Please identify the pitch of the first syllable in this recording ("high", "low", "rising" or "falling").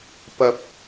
low